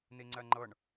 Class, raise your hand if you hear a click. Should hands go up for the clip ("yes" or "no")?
yes